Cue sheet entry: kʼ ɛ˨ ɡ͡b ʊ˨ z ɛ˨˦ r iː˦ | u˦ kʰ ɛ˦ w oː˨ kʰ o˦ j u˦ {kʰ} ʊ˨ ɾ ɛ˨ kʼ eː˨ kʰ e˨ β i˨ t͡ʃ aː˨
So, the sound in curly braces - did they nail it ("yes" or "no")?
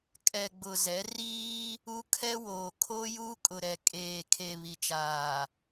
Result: no